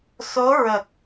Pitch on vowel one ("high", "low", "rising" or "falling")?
rising